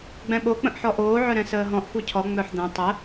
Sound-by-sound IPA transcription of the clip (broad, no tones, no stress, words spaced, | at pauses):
ɡ͡bɛ̃ɓok͡pə̃ʔħɔ ʔoːʕœɾɛ̃ səːɦɔ̃ʔ xʷœcʰɔ ŋ͡mœħd̪ɛ̃ tˤə